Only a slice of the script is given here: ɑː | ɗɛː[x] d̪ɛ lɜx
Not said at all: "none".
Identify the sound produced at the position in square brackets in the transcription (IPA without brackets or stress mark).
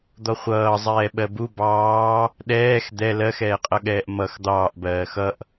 x